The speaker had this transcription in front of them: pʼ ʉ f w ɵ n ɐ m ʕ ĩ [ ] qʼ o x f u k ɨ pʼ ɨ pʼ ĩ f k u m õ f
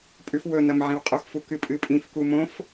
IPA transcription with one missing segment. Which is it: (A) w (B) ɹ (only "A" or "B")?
A